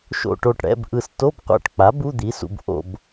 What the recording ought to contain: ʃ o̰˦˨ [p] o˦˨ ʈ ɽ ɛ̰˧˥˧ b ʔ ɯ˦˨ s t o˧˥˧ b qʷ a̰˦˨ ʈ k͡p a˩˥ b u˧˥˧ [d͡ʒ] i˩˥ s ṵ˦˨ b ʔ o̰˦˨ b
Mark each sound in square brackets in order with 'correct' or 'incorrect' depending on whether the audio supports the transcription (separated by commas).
incorrect, incorrect